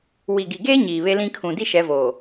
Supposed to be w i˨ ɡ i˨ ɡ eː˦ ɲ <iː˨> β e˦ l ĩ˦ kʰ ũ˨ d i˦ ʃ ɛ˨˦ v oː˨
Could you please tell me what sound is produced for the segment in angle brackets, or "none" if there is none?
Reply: iː˨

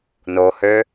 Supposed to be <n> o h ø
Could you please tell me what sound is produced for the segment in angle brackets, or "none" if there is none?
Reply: n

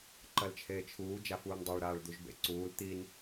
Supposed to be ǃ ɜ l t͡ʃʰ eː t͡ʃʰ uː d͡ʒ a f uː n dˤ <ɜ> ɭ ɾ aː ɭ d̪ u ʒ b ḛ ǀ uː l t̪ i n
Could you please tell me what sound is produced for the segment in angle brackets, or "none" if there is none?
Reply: ɜ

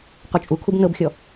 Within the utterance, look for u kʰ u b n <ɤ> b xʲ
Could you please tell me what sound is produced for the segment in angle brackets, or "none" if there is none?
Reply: ɤ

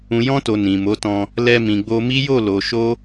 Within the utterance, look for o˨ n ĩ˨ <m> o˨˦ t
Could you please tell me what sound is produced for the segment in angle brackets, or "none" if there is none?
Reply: m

